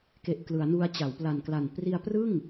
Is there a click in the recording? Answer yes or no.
no